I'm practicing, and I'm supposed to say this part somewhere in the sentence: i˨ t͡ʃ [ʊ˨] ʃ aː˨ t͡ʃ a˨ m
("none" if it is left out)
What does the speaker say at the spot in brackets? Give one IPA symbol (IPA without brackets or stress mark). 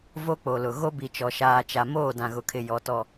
ɔ˨